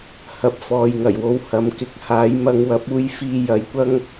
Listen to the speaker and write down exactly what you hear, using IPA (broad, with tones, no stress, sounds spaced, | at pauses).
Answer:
h ɐ˨˥ p̚ f ɔː˨ j ŋ ɐ˨˩ j w o˨˧ w h ɐ˨˧ m k ɪ˧ k̚ h aː˨˥ j m ɐ˧ ŋ w ɐ˨˥ p̚ uː˧ j f iː˧ j ɐ˨˧ j kʷ ɐ˥ ŋ